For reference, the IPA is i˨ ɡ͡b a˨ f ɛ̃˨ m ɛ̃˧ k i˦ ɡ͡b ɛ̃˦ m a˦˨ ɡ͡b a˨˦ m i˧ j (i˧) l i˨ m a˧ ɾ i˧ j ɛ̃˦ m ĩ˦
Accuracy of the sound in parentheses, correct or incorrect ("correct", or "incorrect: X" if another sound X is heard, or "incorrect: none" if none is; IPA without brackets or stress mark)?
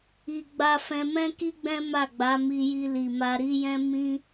correct